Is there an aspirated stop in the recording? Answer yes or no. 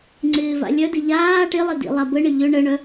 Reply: no